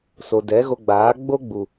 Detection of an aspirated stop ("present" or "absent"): absent